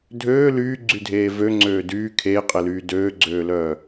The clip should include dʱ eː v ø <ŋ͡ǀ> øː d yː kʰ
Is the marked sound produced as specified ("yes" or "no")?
yes